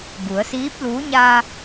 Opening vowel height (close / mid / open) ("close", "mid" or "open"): close